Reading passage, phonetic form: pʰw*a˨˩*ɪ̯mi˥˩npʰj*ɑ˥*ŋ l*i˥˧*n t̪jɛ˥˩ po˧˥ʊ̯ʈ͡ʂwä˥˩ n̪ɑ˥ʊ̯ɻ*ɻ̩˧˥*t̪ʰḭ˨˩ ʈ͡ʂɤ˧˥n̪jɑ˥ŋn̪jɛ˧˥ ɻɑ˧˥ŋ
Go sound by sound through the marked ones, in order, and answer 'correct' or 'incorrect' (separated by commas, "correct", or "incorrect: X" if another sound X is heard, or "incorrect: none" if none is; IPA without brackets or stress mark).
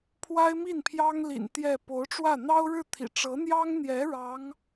incorrect: a˥, correct, incorrect: ḭ˨˩, incorrect: ɻ̩˥˩